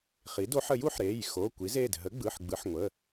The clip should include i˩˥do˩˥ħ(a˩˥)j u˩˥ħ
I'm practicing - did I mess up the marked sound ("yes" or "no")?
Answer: yes